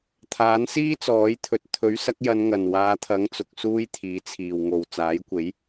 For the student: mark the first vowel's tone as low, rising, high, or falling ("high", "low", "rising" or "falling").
rising